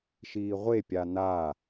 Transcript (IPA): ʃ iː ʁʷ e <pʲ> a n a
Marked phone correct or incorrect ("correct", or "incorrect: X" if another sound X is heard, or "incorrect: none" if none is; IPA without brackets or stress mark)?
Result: correct